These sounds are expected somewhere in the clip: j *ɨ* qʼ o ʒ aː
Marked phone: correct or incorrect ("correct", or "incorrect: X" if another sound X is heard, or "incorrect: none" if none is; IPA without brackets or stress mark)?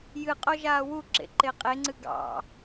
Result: correct